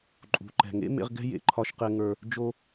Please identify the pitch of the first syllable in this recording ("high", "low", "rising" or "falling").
low